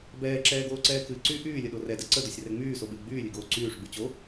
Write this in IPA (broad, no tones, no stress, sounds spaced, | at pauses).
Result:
b ɛː ǁ ɛː ɡ oː ǀ ɛː k ɨ ǀ y ʔ yː lʲ ə ɗ o r ɛ d ɛ ǀ ə d o sʲ r ɛ ŋ͡m yː s o ɓ ɨ w ɡ͡b yː lʲ ɨ ɡ oː ǀ yː ʂ ɡ͡b y t͡ɕ o